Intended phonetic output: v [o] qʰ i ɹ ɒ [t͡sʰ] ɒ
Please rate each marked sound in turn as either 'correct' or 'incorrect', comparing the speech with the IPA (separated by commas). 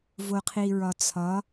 correct, correct